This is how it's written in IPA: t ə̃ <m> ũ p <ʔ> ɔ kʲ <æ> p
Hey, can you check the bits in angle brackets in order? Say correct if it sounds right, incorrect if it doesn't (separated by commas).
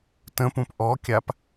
incorrect, correct, incorrect